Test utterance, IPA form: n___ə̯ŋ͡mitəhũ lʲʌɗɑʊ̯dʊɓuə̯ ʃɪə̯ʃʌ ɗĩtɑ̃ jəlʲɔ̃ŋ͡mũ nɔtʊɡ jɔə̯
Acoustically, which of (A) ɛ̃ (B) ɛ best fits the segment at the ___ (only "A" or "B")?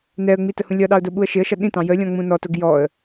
B